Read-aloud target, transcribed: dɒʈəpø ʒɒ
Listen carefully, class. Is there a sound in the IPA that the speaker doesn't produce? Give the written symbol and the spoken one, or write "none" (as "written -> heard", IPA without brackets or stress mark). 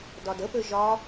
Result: ʈ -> d